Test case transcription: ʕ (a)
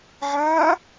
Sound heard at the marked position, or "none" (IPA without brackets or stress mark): aː